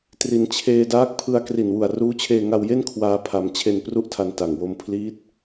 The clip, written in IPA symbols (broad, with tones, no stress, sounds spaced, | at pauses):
t r i˩˦ n t͡ɕʰ eː˧ d aː˦˥ k̚ pʰ ɯ˧ a̯ k r i˨˩ n w u˨˩ a̯ r uː˦˥ t͡ɕʰ eː˧ ŋ a˧ w j e˥˩ n kʰ w aː˧ pʰ a˧ m t͡ɕʰ e˧ n p r u˥˩ ʔ tʰ a˧ n t a˨˩ ŋ w o˧ m pʰ l iː˦˥ t̚